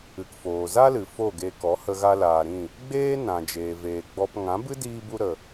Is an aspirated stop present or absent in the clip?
absent